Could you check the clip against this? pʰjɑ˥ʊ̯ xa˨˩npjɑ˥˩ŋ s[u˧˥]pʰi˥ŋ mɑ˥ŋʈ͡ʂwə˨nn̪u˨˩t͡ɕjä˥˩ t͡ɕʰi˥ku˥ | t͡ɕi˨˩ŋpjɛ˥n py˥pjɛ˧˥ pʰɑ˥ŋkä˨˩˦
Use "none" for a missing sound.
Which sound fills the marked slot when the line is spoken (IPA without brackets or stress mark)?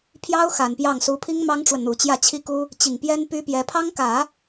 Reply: u˧˥